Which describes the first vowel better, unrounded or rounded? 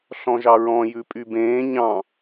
rounded